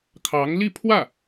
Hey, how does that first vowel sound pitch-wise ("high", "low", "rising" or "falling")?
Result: rising